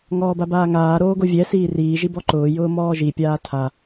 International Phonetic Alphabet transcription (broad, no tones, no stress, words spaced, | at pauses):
ŋɔːbabaːŋaː ɾoːɡovʲɛ siːriː ʒibɔǃʊː jʊːmɔːʒi pʲaːtʰa